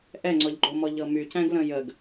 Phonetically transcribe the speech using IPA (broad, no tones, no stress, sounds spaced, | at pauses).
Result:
ʔ ɛ ŋ͡ǀ ɔ ʎ ɡ͡ǃ o m ɔ ʎ ɤ m y c æ̃ ɡ l ə̃ j ə ɡ